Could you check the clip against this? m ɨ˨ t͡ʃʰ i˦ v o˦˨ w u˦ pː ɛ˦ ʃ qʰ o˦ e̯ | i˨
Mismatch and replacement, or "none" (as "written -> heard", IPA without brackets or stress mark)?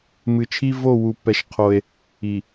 none